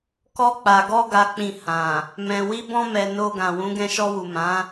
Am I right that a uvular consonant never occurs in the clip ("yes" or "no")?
yes